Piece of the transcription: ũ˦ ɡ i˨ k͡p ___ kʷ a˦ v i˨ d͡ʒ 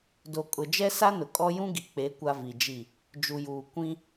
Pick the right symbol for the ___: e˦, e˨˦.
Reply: e˨˦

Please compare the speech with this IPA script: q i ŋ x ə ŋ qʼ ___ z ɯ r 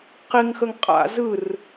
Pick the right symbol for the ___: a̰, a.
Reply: a̰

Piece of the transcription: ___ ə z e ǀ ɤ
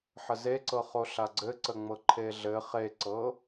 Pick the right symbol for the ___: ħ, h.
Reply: ħ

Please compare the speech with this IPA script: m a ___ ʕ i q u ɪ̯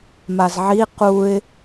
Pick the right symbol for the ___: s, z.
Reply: z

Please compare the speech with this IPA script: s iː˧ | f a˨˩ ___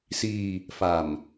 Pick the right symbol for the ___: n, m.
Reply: m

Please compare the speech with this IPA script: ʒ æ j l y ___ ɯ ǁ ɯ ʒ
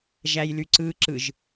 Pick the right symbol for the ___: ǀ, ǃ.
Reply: ǀ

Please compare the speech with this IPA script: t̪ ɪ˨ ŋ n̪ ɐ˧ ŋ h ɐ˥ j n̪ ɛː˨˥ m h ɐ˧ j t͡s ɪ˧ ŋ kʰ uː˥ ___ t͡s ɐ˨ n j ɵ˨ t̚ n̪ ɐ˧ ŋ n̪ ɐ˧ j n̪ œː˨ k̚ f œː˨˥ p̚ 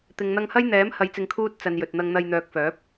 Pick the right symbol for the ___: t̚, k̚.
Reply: t̚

